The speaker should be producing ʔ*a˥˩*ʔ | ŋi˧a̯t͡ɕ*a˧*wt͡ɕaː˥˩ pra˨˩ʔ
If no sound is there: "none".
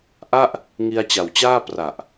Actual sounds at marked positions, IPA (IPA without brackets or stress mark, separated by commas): a˥˩, a˨˩